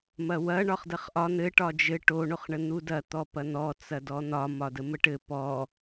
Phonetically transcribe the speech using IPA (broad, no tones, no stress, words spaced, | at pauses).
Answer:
mɐwɐ ɳɒχdɐχʔɒ n̪ɘ ʈɒd͡ʒɘ ʈo ɳoχɳən̪udɐ t̪ɔpɐn̪ɔ t͡sɐdɔn̪ɒ mɒdəməʈɘ pɔ